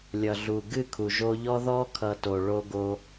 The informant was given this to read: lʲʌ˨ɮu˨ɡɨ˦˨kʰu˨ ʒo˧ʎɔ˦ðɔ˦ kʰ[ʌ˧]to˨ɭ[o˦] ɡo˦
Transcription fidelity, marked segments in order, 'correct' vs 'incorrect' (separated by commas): correct, correct